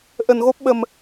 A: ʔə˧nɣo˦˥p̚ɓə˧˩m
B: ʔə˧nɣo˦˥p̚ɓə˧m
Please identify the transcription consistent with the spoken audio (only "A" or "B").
B